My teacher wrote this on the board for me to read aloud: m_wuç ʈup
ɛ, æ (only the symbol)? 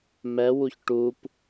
ɛ